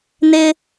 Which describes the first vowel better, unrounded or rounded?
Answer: unrounded